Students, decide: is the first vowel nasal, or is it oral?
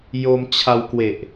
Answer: oral